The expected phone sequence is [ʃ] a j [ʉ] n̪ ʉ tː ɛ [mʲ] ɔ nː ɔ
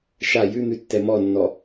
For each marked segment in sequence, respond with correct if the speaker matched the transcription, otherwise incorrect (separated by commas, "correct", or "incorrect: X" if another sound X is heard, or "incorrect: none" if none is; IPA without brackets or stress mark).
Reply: correct, correct, incorrect: m